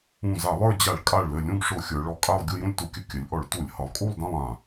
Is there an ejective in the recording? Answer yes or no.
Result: yes